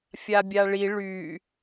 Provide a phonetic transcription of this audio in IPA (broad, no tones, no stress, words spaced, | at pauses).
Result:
fʲabʲaɭi ɭy